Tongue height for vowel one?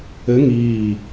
mid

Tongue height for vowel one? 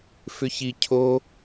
high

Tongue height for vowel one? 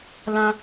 low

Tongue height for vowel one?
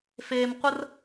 mid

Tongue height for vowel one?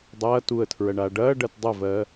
low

